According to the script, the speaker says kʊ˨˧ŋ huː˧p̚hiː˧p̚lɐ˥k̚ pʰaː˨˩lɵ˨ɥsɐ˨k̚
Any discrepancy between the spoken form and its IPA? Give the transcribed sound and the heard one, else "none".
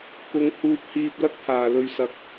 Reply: none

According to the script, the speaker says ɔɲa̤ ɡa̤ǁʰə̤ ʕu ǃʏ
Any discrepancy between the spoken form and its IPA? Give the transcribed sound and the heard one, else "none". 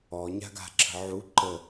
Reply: ʏ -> ə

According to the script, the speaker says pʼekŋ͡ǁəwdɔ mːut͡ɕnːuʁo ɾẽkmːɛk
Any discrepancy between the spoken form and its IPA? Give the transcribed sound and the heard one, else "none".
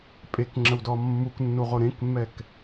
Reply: t͡ɕ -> k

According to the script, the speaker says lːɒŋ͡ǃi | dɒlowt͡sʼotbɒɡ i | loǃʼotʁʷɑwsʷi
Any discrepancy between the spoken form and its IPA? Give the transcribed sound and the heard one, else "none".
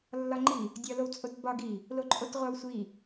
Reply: d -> dʲ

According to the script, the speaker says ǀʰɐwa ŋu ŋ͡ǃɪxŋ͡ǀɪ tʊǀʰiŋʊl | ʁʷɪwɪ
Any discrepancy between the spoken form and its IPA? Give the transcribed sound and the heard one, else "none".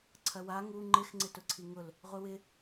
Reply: none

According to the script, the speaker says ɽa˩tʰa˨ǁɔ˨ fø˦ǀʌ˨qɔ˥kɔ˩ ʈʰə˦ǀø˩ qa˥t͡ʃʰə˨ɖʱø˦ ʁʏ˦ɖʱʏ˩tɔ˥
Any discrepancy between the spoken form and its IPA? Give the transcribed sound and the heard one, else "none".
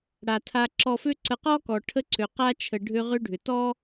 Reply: ʌ˨ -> ə˨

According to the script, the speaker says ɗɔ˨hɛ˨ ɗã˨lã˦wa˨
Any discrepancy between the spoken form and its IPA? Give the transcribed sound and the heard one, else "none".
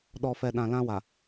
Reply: h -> f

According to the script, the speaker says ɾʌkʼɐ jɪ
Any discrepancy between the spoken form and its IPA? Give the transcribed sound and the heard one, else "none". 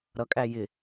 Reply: ɐ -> æ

